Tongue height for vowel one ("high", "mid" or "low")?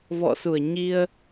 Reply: mid